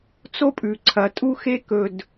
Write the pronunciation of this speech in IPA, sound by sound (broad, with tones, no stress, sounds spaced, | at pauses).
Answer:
t͡s o˥ pʼ ʉ˩ ǀʰ ɐ˩ tʼ u˥ x e˥ k ɵ˩ d